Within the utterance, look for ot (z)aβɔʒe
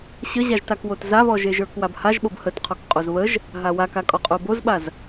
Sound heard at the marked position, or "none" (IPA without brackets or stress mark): z